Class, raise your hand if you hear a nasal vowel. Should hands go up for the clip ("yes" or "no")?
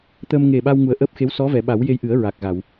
no